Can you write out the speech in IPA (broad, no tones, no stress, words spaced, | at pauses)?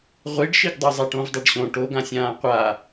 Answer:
ʁʷiɖʃiɡdˤo zˤaʈõvdˤɛɖɕõ ʈoɡãsʲãː qʷa